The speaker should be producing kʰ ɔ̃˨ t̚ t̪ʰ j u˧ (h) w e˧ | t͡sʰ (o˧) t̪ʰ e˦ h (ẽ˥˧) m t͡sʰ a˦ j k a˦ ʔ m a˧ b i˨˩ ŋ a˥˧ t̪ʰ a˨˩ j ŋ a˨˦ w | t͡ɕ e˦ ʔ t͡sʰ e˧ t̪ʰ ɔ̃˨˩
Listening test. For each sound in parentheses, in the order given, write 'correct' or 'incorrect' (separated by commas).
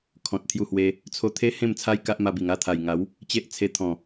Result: correct, correct, correct